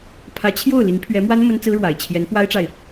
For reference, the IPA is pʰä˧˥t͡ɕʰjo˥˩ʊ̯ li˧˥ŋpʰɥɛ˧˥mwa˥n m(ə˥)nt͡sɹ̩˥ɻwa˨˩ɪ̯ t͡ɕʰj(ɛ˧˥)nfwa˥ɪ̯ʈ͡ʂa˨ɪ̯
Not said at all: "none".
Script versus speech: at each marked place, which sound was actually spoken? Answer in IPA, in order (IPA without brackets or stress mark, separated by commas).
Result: ə˥, ɛ˧˥